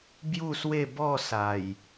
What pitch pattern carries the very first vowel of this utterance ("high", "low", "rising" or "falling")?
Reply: falling